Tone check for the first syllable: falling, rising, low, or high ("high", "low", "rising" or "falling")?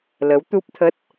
rising